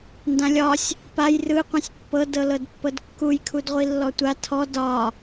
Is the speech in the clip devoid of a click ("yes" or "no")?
yes